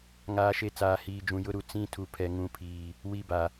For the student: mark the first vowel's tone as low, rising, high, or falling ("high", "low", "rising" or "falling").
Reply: rising